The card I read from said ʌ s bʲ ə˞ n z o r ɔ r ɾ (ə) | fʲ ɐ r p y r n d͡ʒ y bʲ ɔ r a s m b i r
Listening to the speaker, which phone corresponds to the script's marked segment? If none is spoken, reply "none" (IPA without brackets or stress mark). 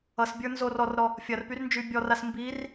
ɔ